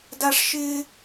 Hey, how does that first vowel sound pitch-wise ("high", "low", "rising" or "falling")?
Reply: high